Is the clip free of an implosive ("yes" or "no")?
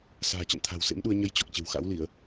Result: no